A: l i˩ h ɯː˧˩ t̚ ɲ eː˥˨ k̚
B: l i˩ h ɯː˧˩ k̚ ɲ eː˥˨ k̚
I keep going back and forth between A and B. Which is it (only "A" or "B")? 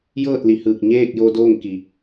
B